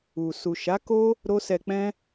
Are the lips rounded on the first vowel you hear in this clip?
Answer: yes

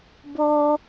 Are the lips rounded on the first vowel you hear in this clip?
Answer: yes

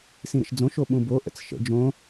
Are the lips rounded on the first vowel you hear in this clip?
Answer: no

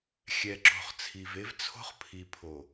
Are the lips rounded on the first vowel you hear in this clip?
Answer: no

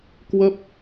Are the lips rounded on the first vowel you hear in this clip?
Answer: no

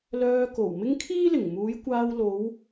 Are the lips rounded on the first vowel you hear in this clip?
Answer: yes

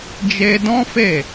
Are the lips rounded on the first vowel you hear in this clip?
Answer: no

